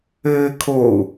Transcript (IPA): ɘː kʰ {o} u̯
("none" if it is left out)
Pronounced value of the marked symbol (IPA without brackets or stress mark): o